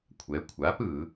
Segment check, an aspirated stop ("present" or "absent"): present